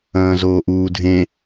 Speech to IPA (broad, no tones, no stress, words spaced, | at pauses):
ɐ̃ːzoːʔuːdʱẽ